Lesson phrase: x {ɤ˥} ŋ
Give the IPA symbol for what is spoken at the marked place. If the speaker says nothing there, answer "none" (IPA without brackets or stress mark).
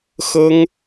ɤ˥